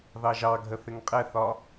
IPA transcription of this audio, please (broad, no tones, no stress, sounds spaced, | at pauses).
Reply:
ð ɑ ʒ ɑ ɡʱ ə θ ɪ ŋ qʼ ɛ θ ɒ